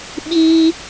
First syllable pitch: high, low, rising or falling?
high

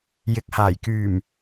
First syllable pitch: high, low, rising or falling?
rising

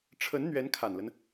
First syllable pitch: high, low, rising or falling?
rising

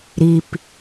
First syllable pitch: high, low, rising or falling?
low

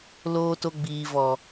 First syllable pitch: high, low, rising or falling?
high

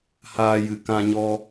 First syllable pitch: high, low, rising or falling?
high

